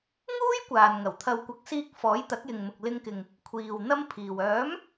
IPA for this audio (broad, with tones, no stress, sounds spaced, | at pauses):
ŋ uː˥ j kʷ aː˨ n ŋ ɐ˨˩ w t̪ʰ ɐ˧ w kʷ ɐ˧ k̚ s iː˧ k̚ f ɔː˨˥ j t̪ ɐ˨˥ k̚ j ɪ˨ ŋ m ʊ˨ k̚ l ɪ˧ ŋ k ɪ˨ ŋ | kʷʰ iː˨ w n̪ ɐ˥ m pʰ iː˨ w œː˨˥ m